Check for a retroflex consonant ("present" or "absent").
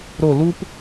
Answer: absent